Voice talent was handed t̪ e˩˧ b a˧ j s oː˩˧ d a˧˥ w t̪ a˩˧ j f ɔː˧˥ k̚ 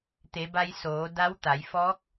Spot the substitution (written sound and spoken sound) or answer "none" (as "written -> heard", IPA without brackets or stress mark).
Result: none